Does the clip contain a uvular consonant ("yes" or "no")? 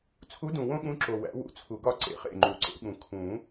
yes